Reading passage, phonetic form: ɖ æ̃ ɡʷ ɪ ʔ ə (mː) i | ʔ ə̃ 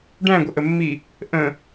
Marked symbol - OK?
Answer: yes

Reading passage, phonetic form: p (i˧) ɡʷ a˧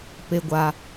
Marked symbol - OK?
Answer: no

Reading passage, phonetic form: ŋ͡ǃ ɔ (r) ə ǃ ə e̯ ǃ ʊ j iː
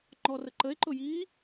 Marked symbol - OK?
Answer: yes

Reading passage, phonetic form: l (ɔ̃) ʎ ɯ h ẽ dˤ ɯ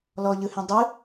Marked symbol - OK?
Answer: no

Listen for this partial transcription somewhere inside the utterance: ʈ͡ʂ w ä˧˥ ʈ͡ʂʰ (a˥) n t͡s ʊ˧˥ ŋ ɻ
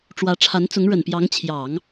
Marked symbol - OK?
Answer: no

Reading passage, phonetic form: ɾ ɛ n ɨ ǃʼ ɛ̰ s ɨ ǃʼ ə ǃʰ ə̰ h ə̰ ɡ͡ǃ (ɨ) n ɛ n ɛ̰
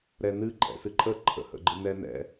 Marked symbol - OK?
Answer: yes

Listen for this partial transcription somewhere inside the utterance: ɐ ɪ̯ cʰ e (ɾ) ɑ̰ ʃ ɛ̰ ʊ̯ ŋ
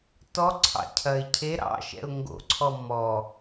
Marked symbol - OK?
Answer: yes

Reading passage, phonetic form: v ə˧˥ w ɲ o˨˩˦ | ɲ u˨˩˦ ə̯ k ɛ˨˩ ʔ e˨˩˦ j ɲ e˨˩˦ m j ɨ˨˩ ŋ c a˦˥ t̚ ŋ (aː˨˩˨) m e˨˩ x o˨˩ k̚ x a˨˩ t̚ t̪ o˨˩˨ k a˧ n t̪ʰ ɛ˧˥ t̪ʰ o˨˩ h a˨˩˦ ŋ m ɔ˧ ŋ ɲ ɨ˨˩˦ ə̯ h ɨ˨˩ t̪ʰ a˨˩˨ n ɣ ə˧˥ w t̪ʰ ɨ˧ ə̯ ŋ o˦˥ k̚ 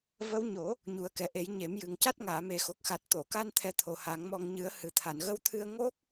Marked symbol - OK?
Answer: yes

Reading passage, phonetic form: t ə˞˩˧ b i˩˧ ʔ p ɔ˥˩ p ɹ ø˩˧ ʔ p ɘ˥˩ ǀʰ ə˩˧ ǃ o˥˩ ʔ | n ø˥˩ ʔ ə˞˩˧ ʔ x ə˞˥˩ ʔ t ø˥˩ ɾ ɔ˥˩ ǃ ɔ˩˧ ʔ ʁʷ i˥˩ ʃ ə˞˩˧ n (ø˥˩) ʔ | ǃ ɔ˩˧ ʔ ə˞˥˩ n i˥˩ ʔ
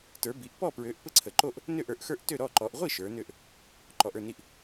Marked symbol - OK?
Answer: yes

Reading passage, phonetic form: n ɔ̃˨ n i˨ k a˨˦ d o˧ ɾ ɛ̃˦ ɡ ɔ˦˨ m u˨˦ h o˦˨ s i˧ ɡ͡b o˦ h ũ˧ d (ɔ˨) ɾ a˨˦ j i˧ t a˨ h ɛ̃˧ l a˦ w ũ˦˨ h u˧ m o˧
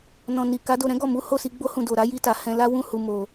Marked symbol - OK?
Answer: no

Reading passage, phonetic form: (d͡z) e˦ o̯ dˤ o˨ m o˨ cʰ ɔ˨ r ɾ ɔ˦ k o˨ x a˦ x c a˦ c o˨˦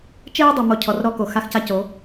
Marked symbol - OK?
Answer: no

